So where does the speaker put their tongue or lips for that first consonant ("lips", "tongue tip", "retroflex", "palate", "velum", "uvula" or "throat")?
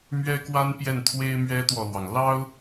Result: lips